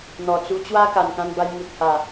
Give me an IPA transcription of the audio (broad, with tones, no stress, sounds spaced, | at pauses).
n̪ ɔ˨˩ t͡s u˧ t͡ɕ w a˦ k a˨˩ n k ã˧ n b a˧ j m u˨ t̚ h a˨˩